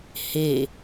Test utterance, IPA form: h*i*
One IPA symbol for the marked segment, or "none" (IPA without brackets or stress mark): e